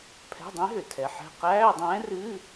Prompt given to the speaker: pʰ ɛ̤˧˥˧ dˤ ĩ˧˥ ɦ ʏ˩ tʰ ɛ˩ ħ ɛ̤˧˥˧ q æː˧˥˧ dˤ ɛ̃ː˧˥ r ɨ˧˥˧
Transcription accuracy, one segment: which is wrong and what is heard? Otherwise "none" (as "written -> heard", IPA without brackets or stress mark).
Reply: none